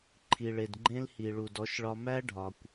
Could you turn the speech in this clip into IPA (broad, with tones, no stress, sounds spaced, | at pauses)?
ǃʰ i˨ ɭ e˨ d ɡ͡ǃ ẽ˦ l h i˨ ɭ u˨ d ɔ˨˦ ʃ ɭ ɒ˧ m æ˦ ɖʱ ɒ˨ kʷ